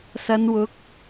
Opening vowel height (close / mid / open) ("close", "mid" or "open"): open